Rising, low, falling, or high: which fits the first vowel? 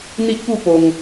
high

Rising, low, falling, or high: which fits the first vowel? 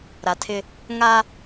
low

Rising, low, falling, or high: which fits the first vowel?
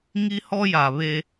high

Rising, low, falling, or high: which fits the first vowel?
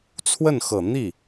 falling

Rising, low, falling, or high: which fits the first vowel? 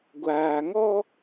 low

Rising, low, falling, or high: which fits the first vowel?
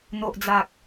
low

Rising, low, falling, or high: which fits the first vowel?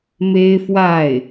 high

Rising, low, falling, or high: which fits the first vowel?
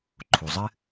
low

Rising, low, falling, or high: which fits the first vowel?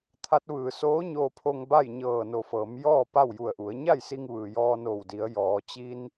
rising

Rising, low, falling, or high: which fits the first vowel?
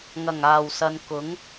low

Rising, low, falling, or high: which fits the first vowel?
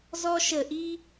high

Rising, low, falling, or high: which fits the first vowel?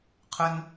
high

